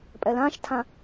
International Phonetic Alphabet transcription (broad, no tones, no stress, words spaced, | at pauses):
pʼɛlãʃtʰã